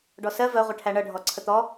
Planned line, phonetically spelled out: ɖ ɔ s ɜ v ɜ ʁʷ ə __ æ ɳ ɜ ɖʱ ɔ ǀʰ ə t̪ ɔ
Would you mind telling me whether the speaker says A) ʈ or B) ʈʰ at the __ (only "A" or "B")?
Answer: B